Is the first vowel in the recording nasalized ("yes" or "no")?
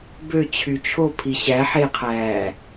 no